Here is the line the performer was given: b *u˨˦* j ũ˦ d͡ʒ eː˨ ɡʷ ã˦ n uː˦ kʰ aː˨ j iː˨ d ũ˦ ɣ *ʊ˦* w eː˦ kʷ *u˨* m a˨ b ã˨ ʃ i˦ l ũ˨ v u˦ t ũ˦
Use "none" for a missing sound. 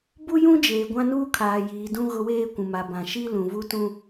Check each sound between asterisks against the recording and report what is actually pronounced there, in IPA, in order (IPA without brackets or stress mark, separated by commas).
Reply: u˦, ʊ˦, ũ˨